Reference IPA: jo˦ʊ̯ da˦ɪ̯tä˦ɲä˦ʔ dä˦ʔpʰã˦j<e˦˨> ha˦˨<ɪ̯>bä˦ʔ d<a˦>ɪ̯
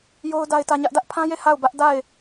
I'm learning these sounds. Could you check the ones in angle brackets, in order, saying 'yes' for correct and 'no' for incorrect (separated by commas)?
yes, no, no